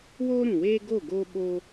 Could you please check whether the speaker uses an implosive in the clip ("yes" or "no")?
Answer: yes